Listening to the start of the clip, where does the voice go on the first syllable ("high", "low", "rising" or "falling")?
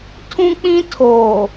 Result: high